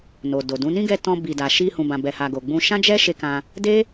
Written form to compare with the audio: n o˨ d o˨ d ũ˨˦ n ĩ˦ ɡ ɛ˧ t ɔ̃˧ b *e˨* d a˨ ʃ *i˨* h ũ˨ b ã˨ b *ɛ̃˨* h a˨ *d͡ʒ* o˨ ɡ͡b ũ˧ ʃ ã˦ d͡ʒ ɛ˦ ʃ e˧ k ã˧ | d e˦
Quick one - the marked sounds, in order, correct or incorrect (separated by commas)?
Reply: incorrect, incorrect, incorrect, incorrect